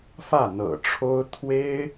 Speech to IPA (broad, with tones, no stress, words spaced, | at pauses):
fä˥˩n̪ɤ̰˨˩ʈ͡ʂʰo˥ʊ̯ t̪ʰwe˥ɪ̯